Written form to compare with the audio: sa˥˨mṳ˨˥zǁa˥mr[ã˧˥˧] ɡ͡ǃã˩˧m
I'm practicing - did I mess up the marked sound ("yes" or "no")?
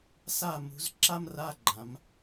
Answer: yes